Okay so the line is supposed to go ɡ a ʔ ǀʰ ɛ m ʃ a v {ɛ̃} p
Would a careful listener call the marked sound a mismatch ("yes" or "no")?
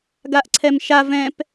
no